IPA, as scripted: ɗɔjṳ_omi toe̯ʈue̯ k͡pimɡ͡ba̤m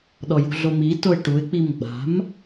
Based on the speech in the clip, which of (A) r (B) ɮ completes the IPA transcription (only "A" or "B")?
B